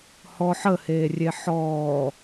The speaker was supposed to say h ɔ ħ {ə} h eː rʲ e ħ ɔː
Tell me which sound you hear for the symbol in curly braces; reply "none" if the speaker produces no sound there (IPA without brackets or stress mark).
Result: ə